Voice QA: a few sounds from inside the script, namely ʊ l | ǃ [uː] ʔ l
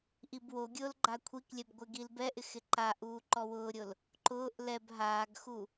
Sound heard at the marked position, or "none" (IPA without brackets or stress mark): ʊː